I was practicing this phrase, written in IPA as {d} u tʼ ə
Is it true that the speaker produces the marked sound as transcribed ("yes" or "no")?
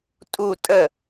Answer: no